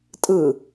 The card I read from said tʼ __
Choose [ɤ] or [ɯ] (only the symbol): ɯ